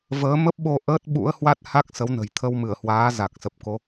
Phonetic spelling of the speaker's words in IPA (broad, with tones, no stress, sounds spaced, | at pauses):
v əː˨˦ m ə˦˥ p̚ ɓ o˧ ʔ əː˦˥ t̚ ɓ ṵ˧˥ ə̯ h w a˦˥ t̚ h a˦˥ k̚ s ə˨˦ w n ə̤˨˩ j t̪ʰ ə˧ w m ɨ˧˩ ə̯ h w aː˨˦ z a˨˩ k̚ s ə˨˩ p̚ k o˨˦